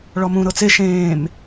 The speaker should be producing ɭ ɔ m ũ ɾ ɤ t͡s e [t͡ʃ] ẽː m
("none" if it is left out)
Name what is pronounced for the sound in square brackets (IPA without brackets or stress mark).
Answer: ʃ